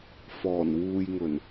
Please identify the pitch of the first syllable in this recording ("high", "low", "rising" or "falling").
low